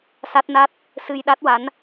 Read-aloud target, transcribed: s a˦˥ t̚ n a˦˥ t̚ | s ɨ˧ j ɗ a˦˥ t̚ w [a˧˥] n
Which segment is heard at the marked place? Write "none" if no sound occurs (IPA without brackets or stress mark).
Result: a˧˥